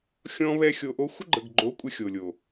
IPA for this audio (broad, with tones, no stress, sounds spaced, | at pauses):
xʲ ɔ̃˦ β ɛ˦ xʲ o˧ ʔ o˦ xʷ ə˦ ɡ͡ǃ ə˨ ɡ ɡ͡ǃ o˨˦ kʷʼ ɘ˧ xʲ o˨ lʲ o˨